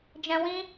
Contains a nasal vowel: yes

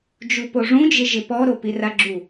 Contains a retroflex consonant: yes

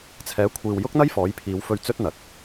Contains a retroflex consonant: no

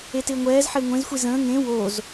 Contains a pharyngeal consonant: yes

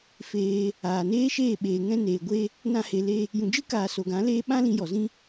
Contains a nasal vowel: yes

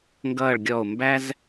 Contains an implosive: no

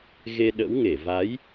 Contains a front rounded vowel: no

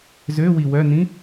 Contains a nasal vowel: yes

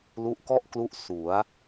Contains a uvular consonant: no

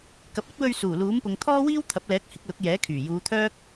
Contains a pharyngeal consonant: no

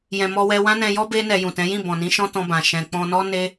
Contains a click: no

